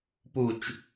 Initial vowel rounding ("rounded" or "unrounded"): rounded